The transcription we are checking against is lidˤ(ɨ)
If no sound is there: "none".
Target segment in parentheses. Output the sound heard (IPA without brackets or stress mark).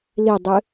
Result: ɨ